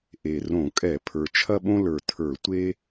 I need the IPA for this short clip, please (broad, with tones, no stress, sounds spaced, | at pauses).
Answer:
ʔ e˨˩ r õ˧˩˧ kʼ ɛ˧˩˧ pʰ ə˞˨˩ t͡ʃʰ ɐ˥ ɓ õ˥ l ə˞˨˩ tʰ ə˞˧˩˧ tʷ e˥